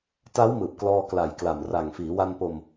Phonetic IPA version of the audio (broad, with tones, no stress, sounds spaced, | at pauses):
t a˦˥ w m ɯː˨˩ p̚ k l ɔː˧ k l a˨˩ j k l a˨˩ m r a˨˩ ŋ f iː˩˦ w a˧ n p o˧ m